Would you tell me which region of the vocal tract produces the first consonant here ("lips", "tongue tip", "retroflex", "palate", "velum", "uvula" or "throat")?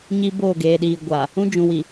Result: palate